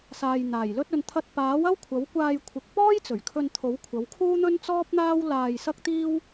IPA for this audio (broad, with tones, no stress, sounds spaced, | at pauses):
s aː˨ j n̪ aː˨˩ j l ɵ˧ t̚ ɵ˨ n t̪ʰ ɐ˧ t̚ p aː˨˥ w ɐ˥ w kʷʰ ɐ˨˥ w kʷ aː˧ j kʷʰ ɪ˨˥ k̚ p ɔː˥ j t͡s ɵ˨˩ ɥ kʰ ɵ˧ n t̪ʰ o˨˥ w kʷʰ ɐ˨˥ w kʰ uː˥ n̪ ɵ˥ n t͡s ɔː˥ p̚ n̪ aː˥ w l aː˧ j s ɐ˥ k̚ t̪ iː˥ w